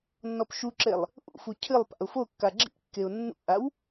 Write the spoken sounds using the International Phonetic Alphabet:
nːɔpʃuǁelˠ | ʔṵfu cʰɨlˠ pa̰ʊ̯fokːa ɡ͡ǁḭkːeʊ̯ nːṵʔaw

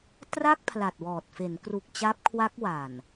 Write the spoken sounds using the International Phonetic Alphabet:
tra˥˩k̚pʰla˨˩t̚wɔː˨˩t̚ fe˩˦nkru˨˩k̚ t͡ɕa˦˥p̚kʰwa˦˥k̚ wa˨˩n

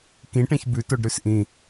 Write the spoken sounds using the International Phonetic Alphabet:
kĩʈẽç bʉtoɖɾʉs ʔĩ

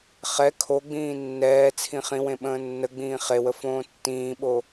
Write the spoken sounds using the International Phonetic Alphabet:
χɛ kʰoɡ͡bĩː nːɛː t͡sʰĩχĩwẽ ɓə̃ːnːəɡ͡bĩː χewə fõːtːĩːɓo

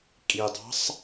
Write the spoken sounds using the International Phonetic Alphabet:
kʼidˤɑ̤sˤ

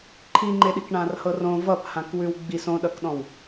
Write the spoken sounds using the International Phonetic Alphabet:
ǃʰiŋ͡ǃeɗik ɳãrhɤrõ vʌp hãkwʉwɡ͡bis õɗʌkɗɔ̃w

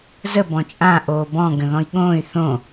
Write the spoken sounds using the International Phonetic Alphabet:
zə bɔ̃t͡ʃʼã ʔoːbɔ̃ ɡə̃ðɔ̃i̯ɠõːy̯ θõ

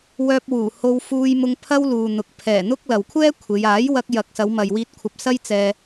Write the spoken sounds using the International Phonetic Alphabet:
wœː˧p̚wuː˨˩ ho˧wfuː˧jmʊ˧ŋ pʰɐ˥wluː˨n̪ʊ˨k̚ pʰɛː˨˩ n̪ʊ˥k̚ lɐ˨wkʷʰɛː˥ kʷʰe˨˧j aː˨˥jwɐ˧k̚ jɐ˨˥k̚sɐ˨˧wmɐ˨jwiː˧t̚ kʷʰɐ˧p̚sɐ˥jt͡sɛː˧

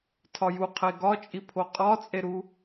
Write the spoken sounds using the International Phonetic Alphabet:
tʰɒju qʰeɡɒt͡ʃʼipʰo qʼɒt͡sʼeɾu

